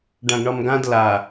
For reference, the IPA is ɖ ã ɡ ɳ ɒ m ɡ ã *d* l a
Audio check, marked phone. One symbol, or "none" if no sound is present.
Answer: d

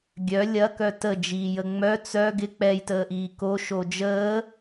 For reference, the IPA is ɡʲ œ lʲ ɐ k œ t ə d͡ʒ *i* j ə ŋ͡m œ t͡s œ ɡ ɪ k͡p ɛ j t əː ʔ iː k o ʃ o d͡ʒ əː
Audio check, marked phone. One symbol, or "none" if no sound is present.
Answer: iː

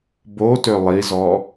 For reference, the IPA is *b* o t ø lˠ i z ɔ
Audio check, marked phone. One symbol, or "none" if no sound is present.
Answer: b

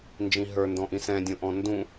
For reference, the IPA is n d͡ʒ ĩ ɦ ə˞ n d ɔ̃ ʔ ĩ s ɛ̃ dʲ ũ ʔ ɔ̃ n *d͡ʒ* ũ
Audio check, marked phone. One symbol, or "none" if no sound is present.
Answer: d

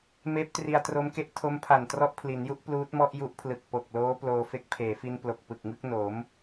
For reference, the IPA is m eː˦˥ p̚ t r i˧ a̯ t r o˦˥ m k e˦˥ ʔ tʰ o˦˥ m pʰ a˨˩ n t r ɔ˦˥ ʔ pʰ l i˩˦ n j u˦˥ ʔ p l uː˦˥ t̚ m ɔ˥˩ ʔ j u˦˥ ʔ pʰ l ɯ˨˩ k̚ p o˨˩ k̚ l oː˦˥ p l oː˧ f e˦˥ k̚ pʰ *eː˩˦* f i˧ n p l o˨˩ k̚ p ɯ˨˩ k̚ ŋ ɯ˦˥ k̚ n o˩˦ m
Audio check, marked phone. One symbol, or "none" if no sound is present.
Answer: eː˩˦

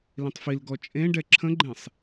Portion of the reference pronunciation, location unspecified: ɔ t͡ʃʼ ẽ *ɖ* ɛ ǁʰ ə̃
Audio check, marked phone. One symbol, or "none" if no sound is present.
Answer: ɖ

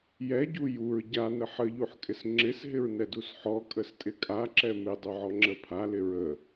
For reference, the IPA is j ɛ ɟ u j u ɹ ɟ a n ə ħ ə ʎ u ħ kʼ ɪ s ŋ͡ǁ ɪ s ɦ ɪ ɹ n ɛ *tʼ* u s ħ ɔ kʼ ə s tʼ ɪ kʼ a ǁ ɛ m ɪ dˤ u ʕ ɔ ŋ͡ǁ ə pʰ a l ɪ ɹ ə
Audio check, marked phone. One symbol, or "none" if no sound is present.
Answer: d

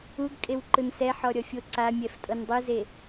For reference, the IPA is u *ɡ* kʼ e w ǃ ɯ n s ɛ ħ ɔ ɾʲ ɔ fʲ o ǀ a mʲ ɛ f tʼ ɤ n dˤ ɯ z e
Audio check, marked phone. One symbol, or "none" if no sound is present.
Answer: ɡ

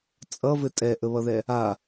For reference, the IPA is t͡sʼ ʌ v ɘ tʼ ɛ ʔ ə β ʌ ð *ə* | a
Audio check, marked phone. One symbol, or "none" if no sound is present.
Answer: ɛ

